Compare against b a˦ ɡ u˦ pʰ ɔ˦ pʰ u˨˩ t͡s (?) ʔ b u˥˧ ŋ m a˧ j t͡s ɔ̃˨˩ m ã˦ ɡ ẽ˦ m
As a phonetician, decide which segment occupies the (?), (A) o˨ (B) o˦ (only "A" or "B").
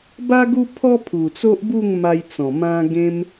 B